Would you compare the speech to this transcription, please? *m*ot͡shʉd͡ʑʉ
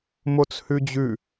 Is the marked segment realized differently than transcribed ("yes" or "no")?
no